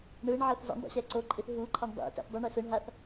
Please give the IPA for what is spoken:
ɳ ɯ ɳ ʕ ɤ θ z o̰ ɳ dˤ ḭ ɕ ɛ ǀ o ǃʼ i θ ɦ u ǃʰ a ɳ dˤ ḭ t ɛ̰ θ dˤ i ɳ e s ɯ ɳ ɦ a θ

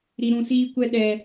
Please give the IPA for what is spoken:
ɾ i˨ ɾ ũ˨ s iː˦ kʷ ɛ˦ ɗ ɛ˨

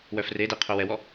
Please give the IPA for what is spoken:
w œ f r e d e qʰ œ w ɛ w ɔ

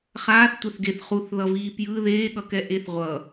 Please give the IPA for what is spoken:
χ aː θ tʷ ɛ θ ɡ e θ χ u θ ð ʌ v iː p j ɯ ð eː ɠ ʌ k ɛ ʔ e θ ʁʷ ʌ

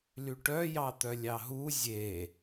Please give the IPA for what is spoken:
l y ʈ œ j ɑ t̪ œ lʲ ɑ ɦ u zʲ e

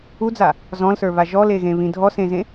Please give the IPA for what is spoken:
u d͡z a | z ɔ̃ l s ə˞ β a ʒ ɔ l e ɣ ẽ β ĩ dʱ ɔ s ẽ z ẽ

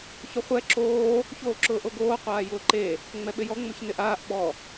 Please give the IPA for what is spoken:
ç ʊ χʷ ɛ ǁ oː | ç oː ǁ ʊː ʔ o ɡ oː qʷ aː j ʊː ǃ e | ŋ͡m ɛ ɓ ɪ j ɔ ŋ͡m o ç n ɪ ʔ aː ʔ ɓ ɔ

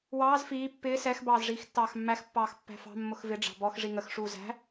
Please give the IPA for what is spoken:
w ɑː z f iː pː ɪː s ɛ x b ɑː z ʐ iː x tː ɑː x mː æ x pː ɑː x pː æ̤ f ɑ̤ mː ʊ x v ɪ ɖ͡ʐ ɑ̤ b ɔ x ʐ i ŋ ə x ʂ uː z æ̤

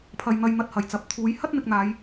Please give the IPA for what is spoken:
pʰ ɐ˨ j n̪ ɐ˧ j n̪ ɐ˧ t̚ h ɐ˨˩ j t͡s ɐ˨˥ p̚ t̪ʰ uː˨˥ j h ɐ˥ t̚ n̪ ɪ˨ k̚ n̪ aː˨˧ j

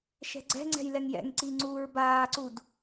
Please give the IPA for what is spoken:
ʃ ɛ̤ ɡ͡ǀ ɛ̤ ŋ͡ǀ ɛ̤ j l ɛ ŋ j ɛ̰ ŋ ǀ i ŋ͡ǀ uː ɹ b aː ǀ u d

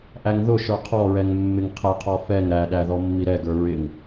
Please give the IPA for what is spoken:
ʔ æ ŋ ð ʊ ʃ ə˞ qʰ ɔ ɹ ɛ ŋ mː ɪ ŋ qʰ ɛ qʰ ɔ f ɛ ŋ ɾ æ ɗ æ ð ɔ mː i ɾ ɛ ɡ ə˞ ɹ ɪ ŋ

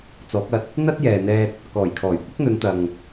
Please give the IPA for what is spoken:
t͡s ɔː˨˥ k̚ ɐ˧ t̚ | n̪ ɐ˥ t̚ j ɛː˨ n̪ ɛː˧ t̚ | k ɔː˨˩ j kʰ ɔː˨˩ j kʷ ɪ˥ k̚ n̪ ɵ˨˧ n t̪ ɐ˨ ŋ

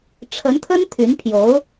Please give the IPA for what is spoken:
ʈ͡ʂʰ ə˧˥ n t̪ʰ ə˥ n t̪ʰ y˧˥ n pʰ j o˧˥ ʊ̯

